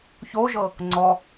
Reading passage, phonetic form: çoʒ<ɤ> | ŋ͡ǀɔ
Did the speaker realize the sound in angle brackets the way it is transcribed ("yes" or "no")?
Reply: yes